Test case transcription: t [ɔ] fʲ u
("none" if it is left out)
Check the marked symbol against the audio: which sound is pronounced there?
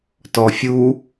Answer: ɔ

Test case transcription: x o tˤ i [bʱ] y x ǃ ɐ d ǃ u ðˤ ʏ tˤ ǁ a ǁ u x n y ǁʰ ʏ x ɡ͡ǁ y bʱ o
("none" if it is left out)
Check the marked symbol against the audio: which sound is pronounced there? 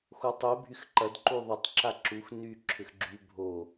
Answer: bʱ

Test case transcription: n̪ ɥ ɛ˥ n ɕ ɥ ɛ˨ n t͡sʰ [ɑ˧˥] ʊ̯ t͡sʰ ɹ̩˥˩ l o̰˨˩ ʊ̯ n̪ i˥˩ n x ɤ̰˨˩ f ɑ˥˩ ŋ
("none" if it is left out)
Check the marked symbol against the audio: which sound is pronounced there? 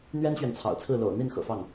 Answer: ɑ̰˨˩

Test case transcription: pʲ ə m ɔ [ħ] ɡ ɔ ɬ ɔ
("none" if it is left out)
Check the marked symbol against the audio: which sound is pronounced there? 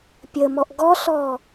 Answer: ʔ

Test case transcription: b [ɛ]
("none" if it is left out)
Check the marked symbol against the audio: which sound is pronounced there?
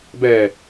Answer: ɛ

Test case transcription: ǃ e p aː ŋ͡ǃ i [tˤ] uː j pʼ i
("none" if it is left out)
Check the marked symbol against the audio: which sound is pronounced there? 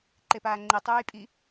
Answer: tˤ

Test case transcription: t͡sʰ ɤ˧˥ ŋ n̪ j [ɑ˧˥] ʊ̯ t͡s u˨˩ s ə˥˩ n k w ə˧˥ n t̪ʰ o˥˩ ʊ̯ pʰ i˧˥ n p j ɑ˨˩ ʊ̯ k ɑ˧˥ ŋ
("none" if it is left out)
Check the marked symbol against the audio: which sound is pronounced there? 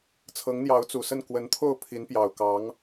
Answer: ɑ˧˥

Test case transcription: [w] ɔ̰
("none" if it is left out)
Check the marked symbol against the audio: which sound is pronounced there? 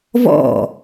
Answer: v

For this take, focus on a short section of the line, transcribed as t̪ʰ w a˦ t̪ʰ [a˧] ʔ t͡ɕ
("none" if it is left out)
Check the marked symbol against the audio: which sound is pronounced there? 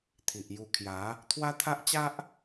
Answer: a˦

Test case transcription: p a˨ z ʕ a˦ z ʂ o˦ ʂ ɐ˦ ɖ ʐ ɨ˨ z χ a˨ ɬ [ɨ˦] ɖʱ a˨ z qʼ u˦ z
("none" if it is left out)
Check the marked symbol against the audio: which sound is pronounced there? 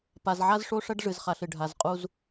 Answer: ɨ˨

